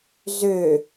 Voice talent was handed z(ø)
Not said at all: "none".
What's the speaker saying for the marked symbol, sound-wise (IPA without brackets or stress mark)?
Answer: ø